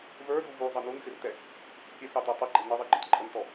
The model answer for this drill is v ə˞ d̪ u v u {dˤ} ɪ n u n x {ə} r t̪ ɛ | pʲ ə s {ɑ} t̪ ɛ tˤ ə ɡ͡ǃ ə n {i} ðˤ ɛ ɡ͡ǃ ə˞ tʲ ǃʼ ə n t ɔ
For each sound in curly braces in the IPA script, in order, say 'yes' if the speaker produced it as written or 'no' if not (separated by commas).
no, no, yes, no